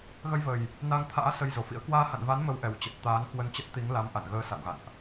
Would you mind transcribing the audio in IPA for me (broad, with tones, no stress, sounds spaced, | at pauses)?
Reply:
ɣ ə˧ j v ə˨˩ j | n a˧ ŋ t̪ʰ a̰ː˧˥ s ə˧ j z o˧˩ f ḭ˧˥ ə̯ k w aː˧ h a̰˧˨ n v a˨˦ n m ə˧ w ʔ ɛ˨˩ w t͡ɕ ə˨˩ t̚ t̪ aː˨˦ n k w ə˧ n t͡ɕ ə˦˥ t̚ t̪ i˨˦ ŋ l a˨˦ m ʔ a̰˧˨ n ɣ əː˧ s a̰˧˨ w ɣ a̰˧˨ n ʔ